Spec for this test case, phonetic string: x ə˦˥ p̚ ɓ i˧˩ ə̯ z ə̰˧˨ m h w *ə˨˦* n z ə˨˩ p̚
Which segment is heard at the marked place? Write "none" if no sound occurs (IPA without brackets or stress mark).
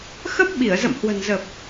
ə̤˨˩